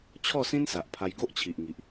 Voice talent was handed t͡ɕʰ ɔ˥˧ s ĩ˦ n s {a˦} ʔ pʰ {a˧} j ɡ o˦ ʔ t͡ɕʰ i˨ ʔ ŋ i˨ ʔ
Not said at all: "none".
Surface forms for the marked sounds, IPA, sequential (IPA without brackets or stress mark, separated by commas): a˨, a˧